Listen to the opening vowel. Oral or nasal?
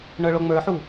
oral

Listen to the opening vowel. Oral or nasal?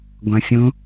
nasal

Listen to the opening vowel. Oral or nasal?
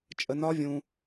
oral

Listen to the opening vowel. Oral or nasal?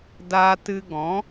oral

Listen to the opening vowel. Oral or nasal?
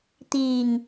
oral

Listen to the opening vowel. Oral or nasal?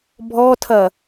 oral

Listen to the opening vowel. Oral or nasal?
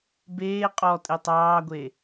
oral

